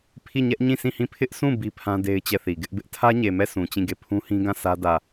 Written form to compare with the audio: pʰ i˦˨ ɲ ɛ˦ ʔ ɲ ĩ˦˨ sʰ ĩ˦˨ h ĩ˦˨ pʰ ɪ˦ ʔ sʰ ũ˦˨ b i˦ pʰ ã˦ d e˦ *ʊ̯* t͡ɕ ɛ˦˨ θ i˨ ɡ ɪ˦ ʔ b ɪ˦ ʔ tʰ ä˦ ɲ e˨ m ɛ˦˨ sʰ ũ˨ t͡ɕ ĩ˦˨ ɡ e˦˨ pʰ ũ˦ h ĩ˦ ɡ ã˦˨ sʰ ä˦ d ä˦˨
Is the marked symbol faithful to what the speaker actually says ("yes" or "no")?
no